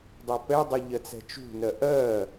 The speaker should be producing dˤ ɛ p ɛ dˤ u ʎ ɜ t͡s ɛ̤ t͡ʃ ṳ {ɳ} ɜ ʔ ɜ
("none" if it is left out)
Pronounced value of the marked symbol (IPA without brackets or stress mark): n